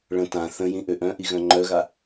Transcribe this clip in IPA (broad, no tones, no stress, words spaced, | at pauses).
ɭə̃ tã θə̃jĩ ʔøʔœ̃ʔi ɣœ̃ŋ͡ǃœɣa